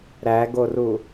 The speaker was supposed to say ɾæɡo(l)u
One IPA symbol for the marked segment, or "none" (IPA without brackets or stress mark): r